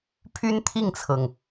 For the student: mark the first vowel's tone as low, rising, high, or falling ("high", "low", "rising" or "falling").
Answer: high